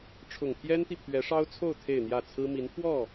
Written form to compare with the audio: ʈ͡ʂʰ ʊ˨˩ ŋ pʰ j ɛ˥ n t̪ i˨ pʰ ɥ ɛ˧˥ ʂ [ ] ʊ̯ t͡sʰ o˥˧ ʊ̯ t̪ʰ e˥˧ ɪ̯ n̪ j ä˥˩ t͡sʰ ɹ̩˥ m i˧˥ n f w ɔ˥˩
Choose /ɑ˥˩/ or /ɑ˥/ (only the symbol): ɑ˥